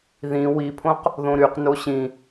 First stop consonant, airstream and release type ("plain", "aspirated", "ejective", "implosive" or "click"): aspirated